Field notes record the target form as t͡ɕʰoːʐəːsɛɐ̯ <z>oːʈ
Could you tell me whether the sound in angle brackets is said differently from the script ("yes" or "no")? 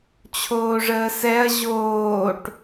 yes